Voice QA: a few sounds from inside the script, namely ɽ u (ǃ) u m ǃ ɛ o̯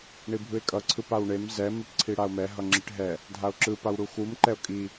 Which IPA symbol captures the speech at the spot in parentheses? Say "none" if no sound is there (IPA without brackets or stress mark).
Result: x